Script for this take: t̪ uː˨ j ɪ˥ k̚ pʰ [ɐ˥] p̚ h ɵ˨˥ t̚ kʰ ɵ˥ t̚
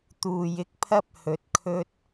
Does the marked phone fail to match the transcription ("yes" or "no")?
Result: no